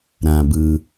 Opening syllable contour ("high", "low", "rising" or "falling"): low